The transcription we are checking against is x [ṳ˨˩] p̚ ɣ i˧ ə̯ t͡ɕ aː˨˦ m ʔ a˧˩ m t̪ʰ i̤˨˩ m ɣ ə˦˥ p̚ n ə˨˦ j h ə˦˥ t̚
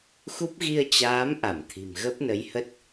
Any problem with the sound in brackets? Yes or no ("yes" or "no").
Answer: yes